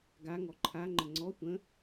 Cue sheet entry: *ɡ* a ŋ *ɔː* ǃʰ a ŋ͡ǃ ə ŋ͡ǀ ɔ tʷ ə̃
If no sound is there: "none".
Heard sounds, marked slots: ɡ, ɔ

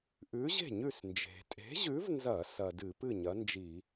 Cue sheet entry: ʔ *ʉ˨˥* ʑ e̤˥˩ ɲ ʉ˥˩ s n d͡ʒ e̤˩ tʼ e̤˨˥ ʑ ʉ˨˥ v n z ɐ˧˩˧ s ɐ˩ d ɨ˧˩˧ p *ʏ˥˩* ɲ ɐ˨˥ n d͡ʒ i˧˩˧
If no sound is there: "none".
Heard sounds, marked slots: ʉ˨˥, ɨ˥˩

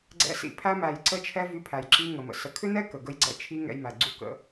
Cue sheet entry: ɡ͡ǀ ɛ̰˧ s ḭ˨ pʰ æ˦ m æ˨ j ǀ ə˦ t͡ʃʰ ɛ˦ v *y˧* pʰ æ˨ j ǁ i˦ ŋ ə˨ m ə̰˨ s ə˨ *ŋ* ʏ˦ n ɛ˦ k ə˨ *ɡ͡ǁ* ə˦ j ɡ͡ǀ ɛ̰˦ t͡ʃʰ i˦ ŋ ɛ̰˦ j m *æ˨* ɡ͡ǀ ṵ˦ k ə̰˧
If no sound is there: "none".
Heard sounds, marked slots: y˧, kʰ, ɡ, æ˨

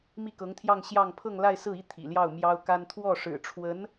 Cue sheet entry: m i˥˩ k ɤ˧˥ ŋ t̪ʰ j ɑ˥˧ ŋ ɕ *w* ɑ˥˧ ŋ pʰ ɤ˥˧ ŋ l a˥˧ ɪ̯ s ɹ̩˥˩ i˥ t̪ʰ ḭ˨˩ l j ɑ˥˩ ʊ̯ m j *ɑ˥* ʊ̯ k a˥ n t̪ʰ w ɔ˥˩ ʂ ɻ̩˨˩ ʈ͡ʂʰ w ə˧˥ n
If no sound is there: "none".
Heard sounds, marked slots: j, ɑ˥

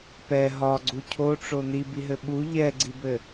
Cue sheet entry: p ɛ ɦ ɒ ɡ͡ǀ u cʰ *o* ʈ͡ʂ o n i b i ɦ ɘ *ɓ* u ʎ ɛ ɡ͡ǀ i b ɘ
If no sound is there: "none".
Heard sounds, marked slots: o, ɓ

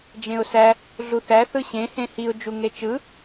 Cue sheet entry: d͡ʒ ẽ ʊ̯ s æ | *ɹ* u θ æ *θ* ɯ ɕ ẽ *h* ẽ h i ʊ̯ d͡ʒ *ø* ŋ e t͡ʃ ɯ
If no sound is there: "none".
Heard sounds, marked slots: ɮ, θ, h, u

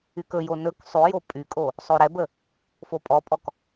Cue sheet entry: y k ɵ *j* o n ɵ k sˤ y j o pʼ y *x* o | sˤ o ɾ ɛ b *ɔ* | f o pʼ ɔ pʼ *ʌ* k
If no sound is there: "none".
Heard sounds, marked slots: j, kʼ, ə, ɔ

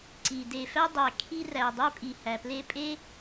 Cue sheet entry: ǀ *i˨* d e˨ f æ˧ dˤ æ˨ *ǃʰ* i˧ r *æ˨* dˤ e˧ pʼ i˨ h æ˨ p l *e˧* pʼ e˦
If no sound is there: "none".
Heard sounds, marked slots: i˨, kʰ, æ˨, e˧

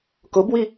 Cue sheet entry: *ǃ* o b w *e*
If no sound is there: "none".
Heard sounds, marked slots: k, i

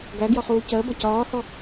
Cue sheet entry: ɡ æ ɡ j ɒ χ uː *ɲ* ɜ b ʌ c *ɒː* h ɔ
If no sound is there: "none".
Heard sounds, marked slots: c, ɒː

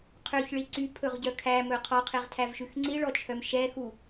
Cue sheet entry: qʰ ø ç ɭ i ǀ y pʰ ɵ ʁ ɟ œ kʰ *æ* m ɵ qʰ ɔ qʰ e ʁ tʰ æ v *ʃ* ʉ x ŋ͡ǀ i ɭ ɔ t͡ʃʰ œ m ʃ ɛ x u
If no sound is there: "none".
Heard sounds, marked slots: æ, ʃ

